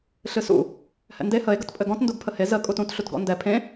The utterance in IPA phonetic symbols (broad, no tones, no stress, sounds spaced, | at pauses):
ɬ ɨ s ṵ | h ɛ̰ n d e h ə e̯ ɡ ə t pʼ ɘ ɡ ɔ̃ t n d u ɡ pʰ ə h e z ə kʼ u t ũ t ɬ u t ɡ ɔ̰ n d ɛ pʰ ẽ